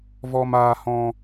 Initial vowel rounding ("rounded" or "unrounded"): rounded